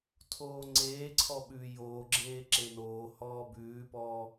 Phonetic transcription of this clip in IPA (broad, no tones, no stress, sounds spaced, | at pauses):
tʰ oː ŋ͡ǀ eː ǀʰ ɔ ɓ ʉ j oː ɡ͡ǁ eː ǁ e n oː h ɔː b ʉː p ɔː